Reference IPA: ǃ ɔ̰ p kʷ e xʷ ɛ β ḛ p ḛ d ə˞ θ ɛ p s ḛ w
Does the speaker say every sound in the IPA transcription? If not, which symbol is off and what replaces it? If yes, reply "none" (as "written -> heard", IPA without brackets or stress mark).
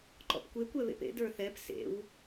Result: xʷ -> kʷ